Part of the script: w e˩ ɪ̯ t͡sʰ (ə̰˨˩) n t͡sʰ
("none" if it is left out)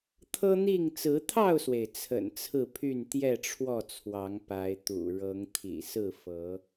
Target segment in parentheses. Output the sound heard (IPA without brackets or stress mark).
ə̰˨˩